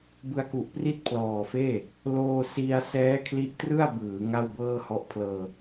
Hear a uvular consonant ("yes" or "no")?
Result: no